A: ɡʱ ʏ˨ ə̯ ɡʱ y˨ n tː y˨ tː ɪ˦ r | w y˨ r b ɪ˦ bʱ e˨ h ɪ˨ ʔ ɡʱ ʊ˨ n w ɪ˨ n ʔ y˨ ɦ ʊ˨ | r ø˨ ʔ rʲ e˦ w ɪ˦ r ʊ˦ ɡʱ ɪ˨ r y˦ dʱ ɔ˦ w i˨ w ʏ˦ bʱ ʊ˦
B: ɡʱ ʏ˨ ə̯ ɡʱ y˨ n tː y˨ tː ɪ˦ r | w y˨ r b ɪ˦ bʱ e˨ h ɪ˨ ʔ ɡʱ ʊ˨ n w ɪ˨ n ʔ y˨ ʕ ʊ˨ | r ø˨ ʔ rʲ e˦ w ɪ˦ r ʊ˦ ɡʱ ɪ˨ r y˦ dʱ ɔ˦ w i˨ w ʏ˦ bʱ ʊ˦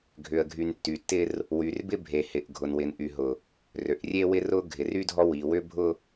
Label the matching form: A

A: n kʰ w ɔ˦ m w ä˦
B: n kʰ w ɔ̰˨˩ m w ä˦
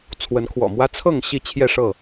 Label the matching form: B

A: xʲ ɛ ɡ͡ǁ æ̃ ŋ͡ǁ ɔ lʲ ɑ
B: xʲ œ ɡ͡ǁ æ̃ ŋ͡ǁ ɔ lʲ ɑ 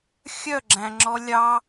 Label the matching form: B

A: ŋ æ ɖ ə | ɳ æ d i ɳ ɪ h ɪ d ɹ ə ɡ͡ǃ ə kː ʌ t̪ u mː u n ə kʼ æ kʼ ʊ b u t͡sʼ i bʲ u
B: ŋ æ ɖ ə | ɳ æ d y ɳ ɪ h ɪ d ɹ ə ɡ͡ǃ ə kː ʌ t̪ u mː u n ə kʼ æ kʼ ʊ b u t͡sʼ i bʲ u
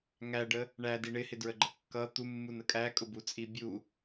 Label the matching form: A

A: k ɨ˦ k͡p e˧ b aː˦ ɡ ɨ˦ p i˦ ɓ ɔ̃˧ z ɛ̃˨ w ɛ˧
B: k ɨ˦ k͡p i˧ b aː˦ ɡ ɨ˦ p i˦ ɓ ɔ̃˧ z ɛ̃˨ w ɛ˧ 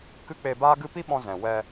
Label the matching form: A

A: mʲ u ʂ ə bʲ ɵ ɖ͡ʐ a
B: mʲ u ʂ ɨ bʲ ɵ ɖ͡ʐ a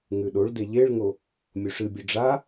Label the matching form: B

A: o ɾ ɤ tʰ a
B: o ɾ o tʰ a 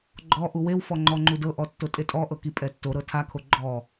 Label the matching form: A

